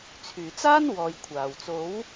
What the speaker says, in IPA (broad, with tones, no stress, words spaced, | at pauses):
t͡sʰyː˨˩t͡saː˥n wɔː˨jkʷʰaː˨˩wt͡so˨˥w